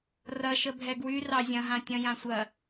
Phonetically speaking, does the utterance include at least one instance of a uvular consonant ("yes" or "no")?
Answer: no